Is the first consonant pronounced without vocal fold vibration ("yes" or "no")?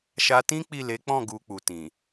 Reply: yes